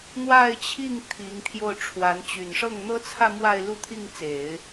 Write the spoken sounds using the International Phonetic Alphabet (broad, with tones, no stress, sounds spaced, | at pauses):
n̪ w a˥˧ ɪ̯ t͡ɕʰ i˥˩ ŋ t̪ʰ i˧˥ ŋ t̪ʰ j o˥˩ ʊ̯ ʈ͡ʂʰ w a˧˥ n t͡ɕ y˨˩ n ʂ ɤ˥˩ ŋ n̪ ɤ˥ t͡sʰ ä˥˧ m w a˥˧ ɪ̯ l u˥˧ t̪ʰ i˥˩ ŋ t͡s e˨˩˦ ɪ̯